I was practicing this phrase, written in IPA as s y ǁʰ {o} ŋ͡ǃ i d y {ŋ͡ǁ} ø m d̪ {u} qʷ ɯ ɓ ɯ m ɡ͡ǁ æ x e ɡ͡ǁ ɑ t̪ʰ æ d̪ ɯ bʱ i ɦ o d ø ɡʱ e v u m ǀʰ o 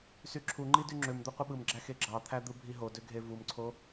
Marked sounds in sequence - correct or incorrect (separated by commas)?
incorrect, correct, incorrect